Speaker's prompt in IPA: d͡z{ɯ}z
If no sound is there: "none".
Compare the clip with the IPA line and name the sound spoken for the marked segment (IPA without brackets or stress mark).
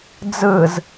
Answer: ɯ